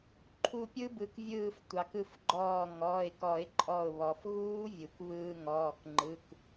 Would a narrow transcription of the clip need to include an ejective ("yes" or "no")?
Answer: yes